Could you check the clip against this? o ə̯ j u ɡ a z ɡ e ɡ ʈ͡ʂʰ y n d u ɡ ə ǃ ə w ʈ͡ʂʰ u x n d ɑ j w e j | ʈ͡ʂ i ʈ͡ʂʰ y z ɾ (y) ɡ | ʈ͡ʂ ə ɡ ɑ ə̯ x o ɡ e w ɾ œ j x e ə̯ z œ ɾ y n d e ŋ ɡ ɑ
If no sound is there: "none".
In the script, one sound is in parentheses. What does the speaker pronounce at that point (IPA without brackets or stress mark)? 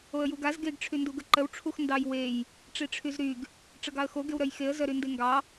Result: y